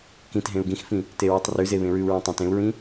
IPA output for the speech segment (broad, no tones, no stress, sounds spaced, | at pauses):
k ĩ t ɦ ẽ u̯ ɡ ĩ x f ĩ | t e ɹ ʉ tˤ r ʉ z e β ẽ ɹ ʉ u̯ ɹ ẽ tˤ õ t ẽ u̯ ɹ ĩ